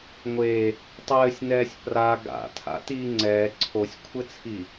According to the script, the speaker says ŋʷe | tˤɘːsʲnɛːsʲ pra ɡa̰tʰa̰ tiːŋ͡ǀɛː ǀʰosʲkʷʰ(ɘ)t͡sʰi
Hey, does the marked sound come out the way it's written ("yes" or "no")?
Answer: yes